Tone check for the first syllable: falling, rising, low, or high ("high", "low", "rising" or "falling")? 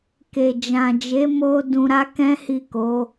low